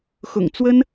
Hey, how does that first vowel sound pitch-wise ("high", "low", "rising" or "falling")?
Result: low